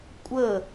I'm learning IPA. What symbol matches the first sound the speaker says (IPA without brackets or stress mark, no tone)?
kʷʼ